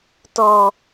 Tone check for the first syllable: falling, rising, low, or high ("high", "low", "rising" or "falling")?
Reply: low